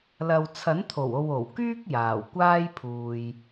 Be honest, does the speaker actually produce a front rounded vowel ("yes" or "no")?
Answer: yes